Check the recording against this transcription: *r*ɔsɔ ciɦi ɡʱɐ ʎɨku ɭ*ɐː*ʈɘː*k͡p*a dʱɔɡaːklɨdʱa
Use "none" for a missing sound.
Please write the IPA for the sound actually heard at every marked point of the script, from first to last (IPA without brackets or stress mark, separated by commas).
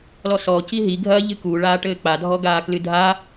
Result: l, aː, k͡p